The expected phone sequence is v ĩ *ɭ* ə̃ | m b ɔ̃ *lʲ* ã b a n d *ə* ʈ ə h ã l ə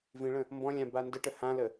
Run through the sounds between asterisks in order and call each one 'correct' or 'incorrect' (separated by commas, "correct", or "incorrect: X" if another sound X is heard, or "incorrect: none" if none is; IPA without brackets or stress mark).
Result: correct, correct, correct